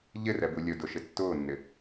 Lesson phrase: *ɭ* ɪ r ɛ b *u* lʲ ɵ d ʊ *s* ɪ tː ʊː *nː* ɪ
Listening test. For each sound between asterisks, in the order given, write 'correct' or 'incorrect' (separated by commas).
incorrect, correct, incorrect, correct